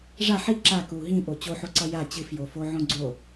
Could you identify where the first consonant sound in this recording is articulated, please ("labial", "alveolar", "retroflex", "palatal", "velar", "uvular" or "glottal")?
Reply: retroflex